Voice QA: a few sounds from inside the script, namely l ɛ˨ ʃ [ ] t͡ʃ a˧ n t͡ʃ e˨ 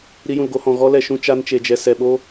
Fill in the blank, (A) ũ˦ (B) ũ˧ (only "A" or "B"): A